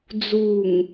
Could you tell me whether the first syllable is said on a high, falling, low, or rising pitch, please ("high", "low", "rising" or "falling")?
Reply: low